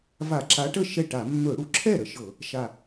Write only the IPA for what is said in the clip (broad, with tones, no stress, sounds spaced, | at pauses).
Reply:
v a˧˩˧ ǁ a˨˦ ʈ ə˥˩ ʃ ɛ˥˩ ʈ a˧˩˧ mː ɵ˧˩˧ ɽ u˨˩ ǁʰ ɛ˥˩ ɾ ə˨˩ ʃ ɤ˧˩˧ | ʃ a˨˩